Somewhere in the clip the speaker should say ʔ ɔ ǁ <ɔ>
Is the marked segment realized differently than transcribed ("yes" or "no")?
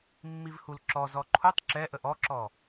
no